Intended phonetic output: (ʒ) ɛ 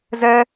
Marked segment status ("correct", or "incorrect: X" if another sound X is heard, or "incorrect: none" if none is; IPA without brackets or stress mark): incorrect: z